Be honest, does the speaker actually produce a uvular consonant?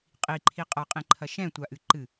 yes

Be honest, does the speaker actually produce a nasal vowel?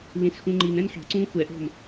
yes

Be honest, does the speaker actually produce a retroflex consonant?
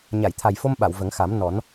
no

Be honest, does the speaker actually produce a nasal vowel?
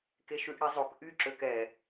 no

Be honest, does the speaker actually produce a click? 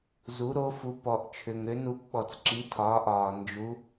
yes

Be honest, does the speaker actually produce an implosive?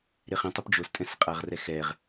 no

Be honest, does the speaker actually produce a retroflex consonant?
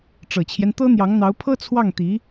yes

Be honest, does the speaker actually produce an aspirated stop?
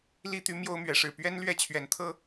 yes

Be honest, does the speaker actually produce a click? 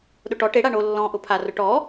no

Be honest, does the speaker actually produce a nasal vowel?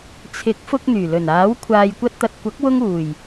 no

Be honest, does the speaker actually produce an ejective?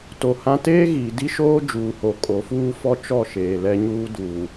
yes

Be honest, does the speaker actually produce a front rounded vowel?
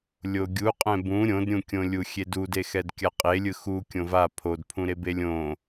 no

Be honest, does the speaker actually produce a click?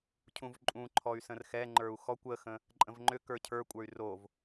yes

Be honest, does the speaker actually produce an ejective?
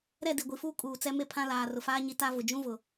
yes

